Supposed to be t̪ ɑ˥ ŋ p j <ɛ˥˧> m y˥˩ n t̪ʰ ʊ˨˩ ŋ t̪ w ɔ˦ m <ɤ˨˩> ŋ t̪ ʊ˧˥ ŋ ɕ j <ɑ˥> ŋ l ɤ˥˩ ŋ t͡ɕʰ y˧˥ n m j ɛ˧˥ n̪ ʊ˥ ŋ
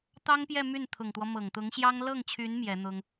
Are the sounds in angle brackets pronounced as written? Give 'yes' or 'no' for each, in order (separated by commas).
yes, yes, yes